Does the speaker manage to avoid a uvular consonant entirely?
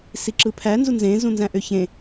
yes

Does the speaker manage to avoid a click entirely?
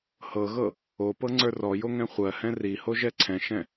no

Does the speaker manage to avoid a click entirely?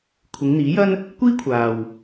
yes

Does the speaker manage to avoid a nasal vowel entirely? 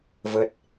yes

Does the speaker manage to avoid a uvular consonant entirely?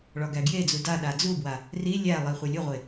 no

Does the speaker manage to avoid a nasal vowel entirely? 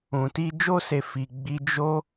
no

